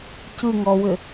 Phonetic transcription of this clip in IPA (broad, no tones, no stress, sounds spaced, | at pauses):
c ɯ ŋ ɔ w ʏ